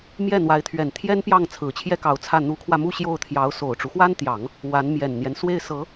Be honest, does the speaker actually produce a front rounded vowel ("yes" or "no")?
no